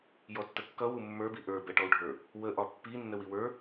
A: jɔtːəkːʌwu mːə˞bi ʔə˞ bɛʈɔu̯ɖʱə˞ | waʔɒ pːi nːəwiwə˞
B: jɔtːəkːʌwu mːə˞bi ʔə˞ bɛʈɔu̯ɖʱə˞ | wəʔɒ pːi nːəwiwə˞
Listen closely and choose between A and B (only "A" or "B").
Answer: B